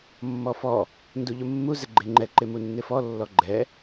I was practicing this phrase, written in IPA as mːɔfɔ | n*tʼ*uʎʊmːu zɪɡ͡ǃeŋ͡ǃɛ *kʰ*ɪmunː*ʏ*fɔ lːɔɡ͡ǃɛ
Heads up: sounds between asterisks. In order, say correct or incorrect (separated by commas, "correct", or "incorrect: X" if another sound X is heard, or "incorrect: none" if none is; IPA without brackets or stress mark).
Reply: incorrect: d, incorrect: ǃ, incorrect: ɪ